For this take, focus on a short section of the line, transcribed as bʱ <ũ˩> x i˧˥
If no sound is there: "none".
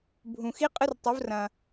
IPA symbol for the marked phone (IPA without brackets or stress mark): ũ˩